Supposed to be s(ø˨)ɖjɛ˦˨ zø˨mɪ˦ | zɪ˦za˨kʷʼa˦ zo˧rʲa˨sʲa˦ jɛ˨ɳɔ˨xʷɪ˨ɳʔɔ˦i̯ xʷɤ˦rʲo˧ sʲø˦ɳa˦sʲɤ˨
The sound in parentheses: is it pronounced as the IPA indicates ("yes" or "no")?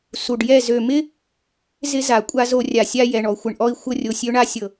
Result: no